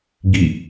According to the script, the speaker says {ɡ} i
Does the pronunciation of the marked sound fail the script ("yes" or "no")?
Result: no